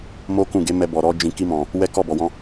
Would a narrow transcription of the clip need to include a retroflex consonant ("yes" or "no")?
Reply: no